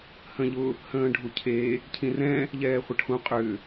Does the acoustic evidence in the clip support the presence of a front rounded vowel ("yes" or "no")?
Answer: yes